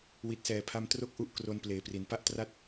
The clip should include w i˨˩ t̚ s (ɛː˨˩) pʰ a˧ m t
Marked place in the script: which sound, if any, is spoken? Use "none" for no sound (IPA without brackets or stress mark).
ɛː˨˩